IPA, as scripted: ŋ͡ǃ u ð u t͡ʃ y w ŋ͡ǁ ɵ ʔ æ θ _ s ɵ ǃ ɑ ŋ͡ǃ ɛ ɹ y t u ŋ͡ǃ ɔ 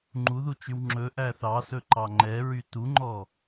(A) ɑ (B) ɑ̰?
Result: A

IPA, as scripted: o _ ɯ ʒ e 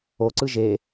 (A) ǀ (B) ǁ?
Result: A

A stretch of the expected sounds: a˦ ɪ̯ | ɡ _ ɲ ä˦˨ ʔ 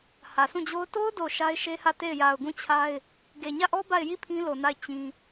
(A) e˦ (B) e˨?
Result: B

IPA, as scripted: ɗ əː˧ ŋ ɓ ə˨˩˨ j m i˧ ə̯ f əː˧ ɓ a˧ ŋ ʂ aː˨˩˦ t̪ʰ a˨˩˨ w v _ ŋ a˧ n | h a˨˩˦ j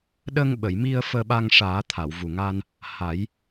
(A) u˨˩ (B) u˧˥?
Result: A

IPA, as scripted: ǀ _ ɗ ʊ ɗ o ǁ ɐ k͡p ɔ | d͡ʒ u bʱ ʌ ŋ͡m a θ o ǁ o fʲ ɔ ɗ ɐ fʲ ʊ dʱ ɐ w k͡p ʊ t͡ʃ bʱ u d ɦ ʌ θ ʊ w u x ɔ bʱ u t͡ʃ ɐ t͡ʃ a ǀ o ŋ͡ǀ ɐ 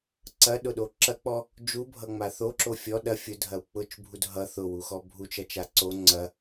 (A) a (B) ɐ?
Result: B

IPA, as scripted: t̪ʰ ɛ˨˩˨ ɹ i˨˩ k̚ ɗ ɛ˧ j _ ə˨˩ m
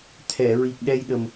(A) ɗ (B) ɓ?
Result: A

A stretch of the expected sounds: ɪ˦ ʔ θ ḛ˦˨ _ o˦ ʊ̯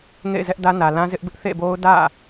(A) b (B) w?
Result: A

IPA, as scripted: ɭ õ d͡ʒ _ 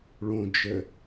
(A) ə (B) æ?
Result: A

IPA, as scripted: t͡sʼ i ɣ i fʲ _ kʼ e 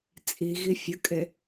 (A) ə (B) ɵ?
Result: A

